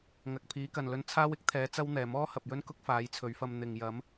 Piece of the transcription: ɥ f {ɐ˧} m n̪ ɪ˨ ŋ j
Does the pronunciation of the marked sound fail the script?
no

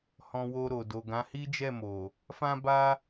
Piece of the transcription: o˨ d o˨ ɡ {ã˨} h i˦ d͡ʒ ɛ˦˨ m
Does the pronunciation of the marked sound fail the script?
yes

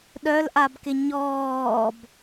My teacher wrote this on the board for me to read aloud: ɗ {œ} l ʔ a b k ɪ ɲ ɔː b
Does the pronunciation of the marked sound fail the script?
no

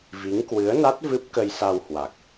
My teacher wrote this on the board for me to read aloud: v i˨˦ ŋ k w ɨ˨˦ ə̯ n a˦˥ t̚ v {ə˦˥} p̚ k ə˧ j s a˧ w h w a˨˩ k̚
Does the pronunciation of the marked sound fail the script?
yes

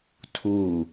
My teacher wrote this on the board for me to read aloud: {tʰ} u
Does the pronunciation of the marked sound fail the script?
no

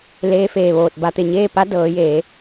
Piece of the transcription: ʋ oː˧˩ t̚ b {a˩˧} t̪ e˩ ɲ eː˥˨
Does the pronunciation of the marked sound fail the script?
no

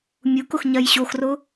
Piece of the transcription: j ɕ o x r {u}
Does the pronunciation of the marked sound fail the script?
yes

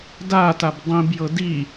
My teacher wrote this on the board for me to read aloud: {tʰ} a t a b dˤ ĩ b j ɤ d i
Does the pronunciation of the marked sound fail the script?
yes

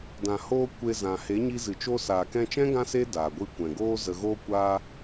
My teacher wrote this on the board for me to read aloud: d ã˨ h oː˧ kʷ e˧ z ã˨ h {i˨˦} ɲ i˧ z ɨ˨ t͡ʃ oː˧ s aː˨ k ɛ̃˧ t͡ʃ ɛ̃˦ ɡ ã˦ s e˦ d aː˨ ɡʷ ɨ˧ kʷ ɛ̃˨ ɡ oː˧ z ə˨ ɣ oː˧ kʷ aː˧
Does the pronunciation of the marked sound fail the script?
yes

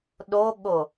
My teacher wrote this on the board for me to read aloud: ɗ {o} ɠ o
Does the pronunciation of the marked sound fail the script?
no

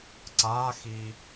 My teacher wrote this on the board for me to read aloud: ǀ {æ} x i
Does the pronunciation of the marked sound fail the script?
yes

